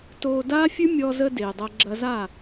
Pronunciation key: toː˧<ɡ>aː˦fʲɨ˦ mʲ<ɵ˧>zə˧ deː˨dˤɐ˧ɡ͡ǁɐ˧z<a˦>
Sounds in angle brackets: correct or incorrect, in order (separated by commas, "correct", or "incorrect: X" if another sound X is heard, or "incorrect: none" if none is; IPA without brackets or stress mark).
incorrect: d, incorrect: ɔ˧, incorrect: a˦˨